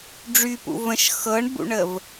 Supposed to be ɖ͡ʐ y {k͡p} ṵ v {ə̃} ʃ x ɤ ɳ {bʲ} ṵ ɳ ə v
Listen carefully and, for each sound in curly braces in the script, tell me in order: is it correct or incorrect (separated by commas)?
incorrect, correct, incorrect